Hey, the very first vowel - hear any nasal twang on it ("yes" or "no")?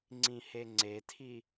yes